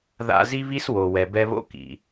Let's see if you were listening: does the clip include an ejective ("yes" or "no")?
no